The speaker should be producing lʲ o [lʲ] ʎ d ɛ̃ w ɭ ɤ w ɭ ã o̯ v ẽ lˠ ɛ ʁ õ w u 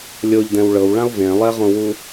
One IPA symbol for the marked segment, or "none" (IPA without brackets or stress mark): none